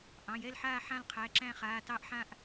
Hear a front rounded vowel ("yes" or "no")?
no